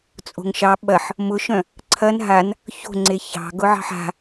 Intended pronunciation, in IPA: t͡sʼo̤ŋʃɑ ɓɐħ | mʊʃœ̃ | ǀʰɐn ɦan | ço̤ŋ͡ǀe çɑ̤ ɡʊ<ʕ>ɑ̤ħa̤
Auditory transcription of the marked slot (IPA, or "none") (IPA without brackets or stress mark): ʕ